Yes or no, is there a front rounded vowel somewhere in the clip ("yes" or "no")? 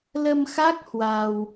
no